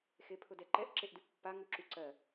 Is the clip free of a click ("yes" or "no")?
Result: no